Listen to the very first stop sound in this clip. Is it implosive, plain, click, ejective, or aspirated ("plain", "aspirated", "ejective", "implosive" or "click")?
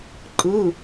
click